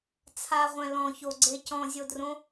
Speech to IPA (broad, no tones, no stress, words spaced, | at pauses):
t͡sʰaʁʷɛ̃ lɔ̃çoɡ͡ǀe cɔ̃zʲodrõ